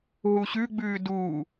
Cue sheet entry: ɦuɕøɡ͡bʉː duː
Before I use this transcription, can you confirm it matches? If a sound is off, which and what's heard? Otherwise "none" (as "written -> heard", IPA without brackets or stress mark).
ø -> ʉ